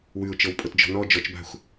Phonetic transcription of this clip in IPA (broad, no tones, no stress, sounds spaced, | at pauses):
w ʉ ʊ̯ t͡ʃ ɤ w pʼ ɤ t d͡ʒ ɔ̤ n ɔ d͡ʒ ɔ t͡ʃ b a̤ xʷ